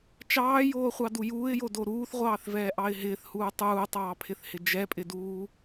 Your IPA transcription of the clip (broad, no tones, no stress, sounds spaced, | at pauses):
t͡ʃ ɑː j oː χʷ ɑ d u j uː ɪ̯ j o d o ɾ uː θ ʁʷ ɑː θ v ɛː ʔ ɑ ɪ̯ ɦ ɪː θ h uː tˤ uː tˤ ɑː pʰ ɪ θ h ɪ d͡ʒ ɛ pʼ ɪ d uː